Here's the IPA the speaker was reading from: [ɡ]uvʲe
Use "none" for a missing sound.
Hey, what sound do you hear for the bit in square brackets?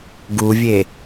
ɡ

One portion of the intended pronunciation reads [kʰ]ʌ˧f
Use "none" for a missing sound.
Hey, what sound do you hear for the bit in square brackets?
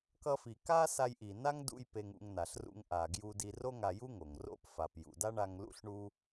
k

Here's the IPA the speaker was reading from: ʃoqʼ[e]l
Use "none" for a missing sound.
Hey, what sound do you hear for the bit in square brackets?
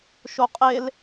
e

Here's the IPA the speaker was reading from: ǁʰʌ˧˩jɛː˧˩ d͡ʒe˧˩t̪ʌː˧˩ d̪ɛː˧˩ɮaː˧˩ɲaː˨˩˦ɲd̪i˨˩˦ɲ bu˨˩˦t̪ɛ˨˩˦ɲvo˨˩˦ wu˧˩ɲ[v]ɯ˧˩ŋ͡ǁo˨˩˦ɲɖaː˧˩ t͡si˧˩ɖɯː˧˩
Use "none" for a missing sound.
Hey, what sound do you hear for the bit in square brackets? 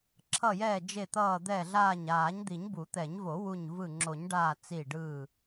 v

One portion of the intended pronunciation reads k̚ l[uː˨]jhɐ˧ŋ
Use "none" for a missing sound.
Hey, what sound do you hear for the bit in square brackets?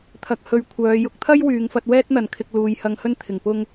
uː˨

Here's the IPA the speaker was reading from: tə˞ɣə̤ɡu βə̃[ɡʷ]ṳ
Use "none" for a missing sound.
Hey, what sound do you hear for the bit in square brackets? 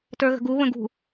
ɡ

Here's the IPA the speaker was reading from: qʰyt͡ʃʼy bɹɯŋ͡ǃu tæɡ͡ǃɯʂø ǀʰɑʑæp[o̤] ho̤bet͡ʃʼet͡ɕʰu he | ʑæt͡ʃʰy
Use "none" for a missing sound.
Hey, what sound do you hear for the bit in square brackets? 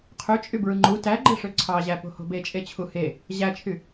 o̤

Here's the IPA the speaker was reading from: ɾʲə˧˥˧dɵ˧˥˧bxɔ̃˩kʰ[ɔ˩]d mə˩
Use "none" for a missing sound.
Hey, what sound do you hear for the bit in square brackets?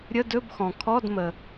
ɔ˧˥˧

